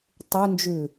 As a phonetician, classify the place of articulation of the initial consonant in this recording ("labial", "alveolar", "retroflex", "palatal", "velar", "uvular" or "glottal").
alveolar